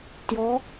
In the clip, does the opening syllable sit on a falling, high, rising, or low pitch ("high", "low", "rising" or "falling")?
rising